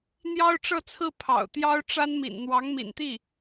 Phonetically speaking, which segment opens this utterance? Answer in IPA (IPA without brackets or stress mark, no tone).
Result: n̪